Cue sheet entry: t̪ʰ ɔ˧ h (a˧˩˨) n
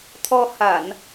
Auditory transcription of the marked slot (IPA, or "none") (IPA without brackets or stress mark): a˧˩˨